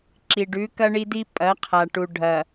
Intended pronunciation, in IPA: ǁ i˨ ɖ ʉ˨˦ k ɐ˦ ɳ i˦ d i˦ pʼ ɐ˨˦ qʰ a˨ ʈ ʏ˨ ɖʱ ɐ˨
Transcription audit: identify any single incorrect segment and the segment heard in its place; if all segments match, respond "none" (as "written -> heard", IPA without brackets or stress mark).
ʏ˨ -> u˨